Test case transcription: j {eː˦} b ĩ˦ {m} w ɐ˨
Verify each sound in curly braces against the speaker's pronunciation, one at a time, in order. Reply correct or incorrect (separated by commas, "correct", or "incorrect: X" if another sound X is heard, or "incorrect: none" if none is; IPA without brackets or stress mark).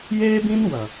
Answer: correct, incorrect: n